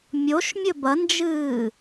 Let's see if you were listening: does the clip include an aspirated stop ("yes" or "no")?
no